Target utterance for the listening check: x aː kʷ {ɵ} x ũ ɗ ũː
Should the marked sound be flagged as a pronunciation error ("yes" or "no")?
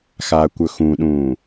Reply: no